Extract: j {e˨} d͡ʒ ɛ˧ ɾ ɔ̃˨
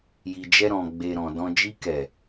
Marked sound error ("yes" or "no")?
yes